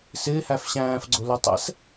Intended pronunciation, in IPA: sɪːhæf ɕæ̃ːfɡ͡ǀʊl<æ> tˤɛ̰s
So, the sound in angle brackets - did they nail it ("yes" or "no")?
no